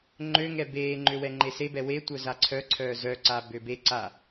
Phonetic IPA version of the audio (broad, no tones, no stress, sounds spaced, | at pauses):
ŋ͡ǃ ø ŋ ɛ b eː ŋ͡ǃ ø w ɛ ŋ͡ǃ e s e b ɛ w e tʷ œ z a ǀʰ œ ǀʰ œː z œ ǀ a b ø b e ǀ a